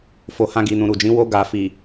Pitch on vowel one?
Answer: low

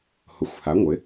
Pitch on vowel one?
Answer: rising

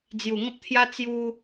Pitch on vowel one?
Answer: low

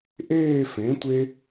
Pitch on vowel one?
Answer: falling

